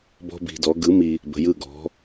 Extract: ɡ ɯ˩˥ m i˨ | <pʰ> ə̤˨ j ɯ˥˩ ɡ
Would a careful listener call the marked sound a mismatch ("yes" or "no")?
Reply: yes